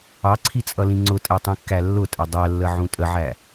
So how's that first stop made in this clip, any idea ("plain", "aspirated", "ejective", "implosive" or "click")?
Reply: click